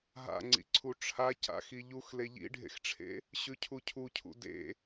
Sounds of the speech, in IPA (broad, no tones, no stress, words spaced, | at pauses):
ɦa̰ŋ͡ǀḭǀʰu ʈ͡ʂʰa ca̰xiʎux leʎḭɖʱḛxʈ͡ʂʰḛ | ɕʉcʰucʰucʰṵ dḛ